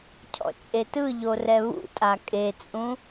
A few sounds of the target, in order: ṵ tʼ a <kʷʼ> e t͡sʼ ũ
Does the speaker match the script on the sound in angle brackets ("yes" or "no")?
no